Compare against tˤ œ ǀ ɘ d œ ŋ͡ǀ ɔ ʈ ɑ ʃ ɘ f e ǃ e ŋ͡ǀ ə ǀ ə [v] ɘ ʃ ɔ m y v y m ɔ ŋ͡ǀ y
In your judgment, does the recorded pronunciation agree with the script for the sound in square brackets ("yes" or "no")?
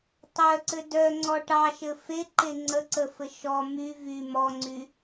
no